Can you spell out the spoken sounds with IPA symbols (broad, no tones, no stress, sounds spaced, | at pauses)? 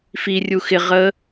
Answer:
f i rʲ u x ɪ ʁ ə